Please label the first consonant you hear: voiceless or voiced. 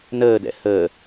voiced